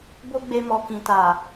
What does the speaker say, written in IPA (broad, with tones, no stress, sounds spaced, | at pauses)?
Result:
b o˦ ɡ͡b e˧ m ɔ˨ k ĩ˨ t a˨